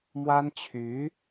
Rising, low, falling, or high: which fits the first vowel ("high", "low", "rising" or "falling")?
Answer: high